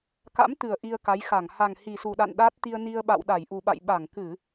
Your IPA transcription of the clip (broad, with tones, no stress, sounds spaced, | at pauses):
k a̰˧˥ m t̪ ɨ˨˩ ə̯ ʔ i˧ ə̯ k a˨˦ j x a˧˩ ŋ h a˨˩ ŋ h i˨˩ s u˨˩ ɗ a̰˧˨ n ɗ aː˦˥ t̚ t̪ i˧ ə̯ n i˧ ə̯ ɓ a̰˧˨ w ɗ a˧˩ j ʔ u˨˩ ɓ a̰˧˨ j ɓ a˧˩ ŋ k ɨ˧˩˨